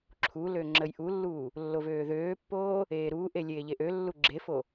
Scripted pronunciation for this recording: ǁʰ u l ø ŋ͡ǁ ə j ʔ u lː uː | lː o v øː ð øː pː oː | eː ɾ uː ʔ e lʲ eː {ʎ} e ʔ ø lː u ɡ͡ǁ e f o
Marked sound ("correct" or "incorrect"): correct